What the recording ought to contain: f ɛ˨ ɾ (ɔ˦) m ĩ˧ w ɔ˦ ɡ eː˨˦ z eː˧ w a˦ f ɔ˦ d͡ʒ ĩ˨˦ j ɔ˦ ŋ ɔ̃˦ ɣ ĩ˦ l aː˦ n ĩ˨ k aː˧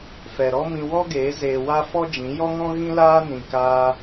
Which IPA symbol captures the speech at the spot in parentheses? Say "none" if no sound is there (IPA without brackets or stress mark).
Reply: ɔ˦